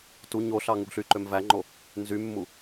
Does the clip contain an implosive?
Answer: no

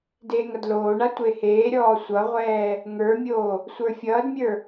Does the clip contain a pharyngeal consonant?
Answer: no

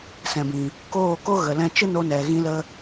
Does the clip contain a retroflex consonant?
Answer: no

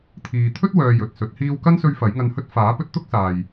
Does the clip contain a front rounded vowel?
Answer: yes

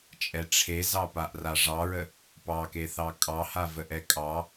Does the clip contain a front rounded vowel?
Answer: no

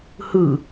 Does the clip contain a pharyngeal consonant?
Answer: no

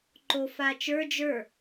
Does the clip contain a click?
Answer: yes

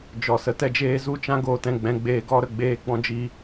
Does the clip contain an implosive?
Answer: no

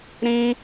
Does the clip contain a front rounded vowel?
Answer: no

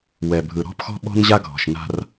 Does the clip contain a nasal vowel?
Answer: no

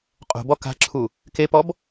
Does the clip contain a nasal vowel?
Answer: no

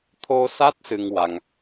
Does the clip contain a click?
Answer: no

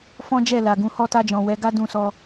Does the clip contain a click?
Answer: no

